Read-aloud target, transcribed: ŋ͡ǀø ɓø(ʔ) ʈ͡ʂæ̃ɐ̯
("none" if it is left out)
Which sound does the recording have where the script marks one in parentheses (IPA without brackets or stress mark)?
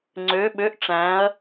ʔ